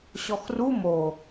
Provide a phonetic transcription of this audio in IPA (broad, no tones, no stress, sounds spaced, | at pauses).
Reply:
ɕ ɔ x r u m o